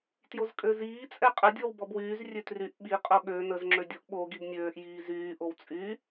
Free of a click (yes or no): no